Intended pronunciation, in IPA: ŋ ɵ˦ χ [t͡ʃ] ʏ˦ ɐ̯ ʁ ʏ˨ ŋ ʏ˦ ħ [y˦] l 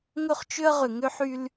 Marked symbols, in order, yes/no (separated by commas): yes, yes